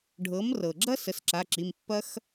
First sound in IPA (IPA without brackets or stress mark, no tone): ɖʱ